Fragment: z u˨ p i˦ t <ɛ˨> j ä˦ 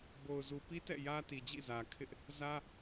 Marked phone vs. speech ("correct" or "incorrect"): incorrect